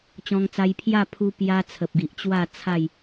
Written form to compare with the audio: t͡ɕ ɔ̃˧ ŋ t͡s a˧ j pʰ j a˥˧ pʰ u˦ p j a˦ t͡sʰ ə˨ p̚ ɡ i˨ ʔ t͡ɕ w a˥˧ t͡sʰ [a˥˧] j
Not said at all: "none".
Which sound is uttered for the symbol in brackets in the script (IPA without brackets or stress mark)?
a˥˧